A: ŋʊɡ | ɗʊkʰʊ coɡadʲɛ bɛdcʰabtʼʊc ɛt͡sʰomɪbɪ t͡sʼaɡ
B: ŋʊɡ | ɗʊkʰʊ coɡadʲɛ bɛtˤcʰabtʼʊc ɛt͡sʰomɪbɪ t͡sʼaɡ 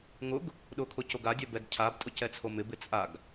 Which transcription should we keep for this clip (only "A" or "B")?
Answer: A